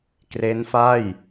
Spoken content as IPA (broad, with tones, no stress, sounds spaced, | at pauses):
k r e˦˥ n f a˥˩ j